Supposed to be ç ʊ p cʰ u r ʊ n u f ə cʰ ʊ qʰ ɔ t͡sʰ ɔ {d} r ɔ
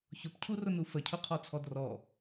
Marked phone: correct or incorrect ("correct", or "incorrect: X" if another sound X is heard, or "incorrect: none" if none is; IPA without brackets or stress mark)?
correct